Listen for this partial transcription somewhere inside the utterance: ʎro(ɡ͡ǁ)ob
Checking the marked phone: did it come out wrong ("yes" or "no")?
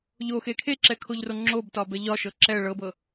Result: yes